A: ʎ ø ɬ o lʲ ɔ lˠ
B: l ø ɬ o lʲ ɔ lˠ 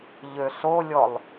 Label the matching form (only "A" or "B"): A